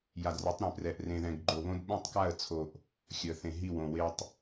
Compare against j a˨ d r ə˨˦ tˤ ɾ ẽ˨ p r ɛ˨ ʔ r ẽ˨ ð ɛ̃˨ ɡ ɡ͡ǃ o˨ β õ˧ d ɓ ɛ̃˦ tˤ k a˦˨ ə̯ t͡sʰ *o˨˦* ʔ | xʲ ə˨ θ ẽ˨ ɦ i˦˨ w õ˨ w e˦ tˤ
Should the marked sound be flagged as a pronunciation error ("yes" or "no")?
yes